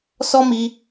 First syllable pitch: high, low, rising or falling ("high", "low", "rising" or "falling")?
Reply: high